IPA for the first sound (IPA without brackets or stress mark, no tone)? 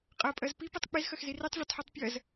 qʼ